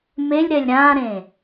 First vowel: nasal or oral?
oral